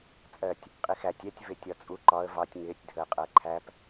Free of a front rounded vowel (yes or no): yes